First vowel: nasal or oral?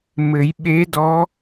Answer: oral